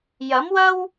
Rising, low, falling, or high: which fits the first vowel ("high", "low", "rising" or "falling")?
rising